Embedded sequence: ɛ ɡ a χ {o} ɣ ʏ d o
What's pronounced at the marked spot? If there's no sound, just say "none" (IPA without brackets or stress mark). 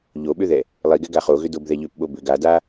o